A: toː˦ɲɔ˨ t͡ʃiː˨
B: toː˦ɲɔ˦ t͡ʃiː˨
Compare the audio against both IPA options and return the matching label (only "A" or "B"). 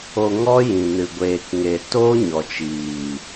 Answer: A